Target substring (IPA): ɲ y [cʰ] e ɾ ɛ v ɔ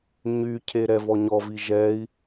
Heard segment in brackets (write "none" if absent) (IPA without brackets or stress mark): cʰ